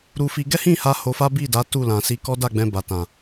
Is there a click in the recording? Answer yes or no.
no